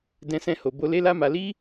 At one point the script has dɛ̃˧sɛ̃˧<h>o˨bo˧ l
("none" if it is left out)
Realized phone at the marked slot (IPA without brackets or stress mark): h